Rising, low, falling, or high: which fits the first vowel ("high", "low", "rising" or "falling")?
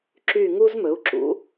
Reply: falling